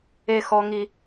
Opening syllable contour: high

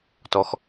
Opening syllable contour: low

